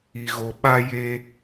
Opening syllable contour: low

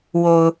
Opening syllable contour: low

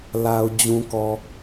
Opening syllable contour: low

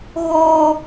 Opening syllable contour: high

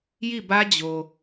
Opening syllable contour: falling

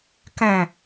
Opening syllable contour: low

